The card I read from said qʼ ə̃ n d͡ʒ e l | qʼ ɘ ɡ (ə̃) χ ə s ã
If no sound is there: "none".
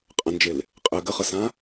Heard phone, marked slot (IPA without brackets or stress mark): ə